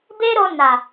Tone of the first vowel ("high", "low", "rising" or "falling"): high